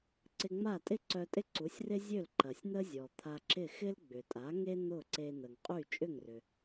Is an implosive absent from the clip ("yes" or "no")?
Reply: yes